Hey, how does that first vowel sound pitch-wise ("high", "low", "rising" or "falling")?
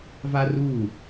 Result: high